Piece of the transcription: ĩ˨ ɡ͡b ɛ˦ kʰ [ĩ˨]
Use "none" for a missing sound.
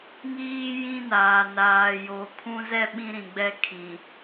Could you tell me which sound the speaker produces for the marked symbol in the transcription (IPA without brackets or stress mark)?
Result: ĩ˨